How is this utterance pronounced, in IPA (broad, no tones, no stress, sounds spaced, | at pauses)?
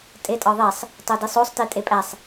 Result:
tʼ e tʼ ɒ ðˤ e sˤ | tˤ o d i sˤ o sˤ t i tʼ e pʼ æ sˤ